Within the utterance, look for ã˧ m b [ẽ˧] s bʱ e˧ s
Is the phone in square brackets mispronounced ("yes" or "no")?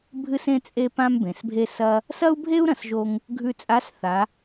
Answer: yes